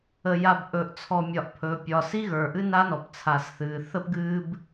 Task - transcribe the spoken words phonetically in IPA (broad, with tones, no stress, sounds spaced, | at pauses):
ə˨ j a˨ b ʔ ɵ˨ ʔ t͡sʰ ɔ˨ mʲ ɒ˨ ʔ pʰ ɵː˨ pʲ ɒː˨ s i˦ ɣ ə˞˨ ʔ ɨ˦ n a˦ n ɔ˨ p t͡sʰ a˨ s θ ɨː˨ θ ə˦ p ɡ ɨː˦ b